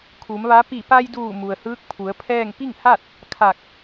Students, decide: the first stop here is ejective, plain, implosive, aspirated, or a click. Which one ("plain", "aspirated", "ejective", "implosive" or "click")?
aspirated